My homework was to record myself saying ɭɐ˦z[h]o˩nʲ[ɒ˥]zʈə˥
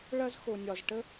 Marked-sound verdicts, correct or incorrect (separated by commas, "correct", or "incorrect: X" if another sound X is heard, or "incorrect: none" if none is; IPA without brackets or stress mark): incorrect: x, incorrect: ɒ˩